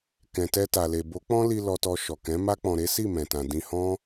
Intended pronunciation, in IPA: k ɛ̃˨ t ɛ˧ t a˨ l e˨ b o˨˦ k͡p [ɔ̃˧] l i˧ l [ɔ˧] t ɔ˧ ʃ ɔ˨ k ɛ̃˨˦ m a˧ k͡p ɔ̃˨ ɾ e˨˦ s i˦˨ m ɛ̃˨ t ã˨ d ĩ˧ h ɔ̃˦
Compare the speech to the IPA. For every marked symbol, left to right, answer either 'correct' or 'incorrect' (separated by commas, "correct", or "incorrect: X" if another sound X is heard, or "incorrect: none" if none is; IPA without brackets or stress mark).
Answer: incorrect: ɔ̃˦, correct